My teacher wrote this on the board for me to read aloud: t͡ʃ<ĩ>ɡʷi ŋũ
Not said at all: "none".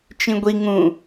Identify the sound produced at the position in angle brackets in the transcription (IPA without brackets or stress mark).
ĩ